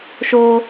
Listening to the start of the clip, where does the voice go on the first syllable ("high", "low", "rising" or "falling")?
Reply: high